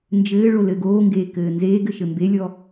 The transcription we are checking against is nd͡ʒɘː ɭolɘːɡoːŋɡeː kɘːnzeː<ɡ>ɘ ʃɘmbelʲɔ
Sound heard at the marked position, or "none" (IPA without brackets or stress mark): ɡ